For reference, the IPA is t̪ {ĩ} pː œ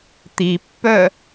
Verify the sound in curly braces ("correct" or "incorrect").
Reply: incorrect